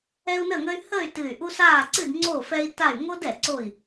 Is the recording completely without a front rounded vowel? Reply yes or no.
no